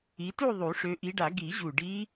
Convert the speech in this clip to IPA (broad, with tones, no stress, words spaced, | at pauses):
i˨˦tu˥˧ ðˤu˨˩˦ʂø˨˦ʔi˨˦ɖa˨˩˦ ɡi˨˩˦ʑu˨˩ ɖi˦˥